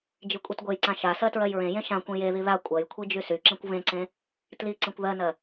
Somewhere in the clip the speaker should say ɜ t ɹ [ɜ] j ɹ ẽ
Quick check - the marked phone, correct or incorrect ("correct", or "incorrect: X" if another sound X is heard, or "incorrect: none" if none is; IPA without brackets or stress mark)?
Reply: correct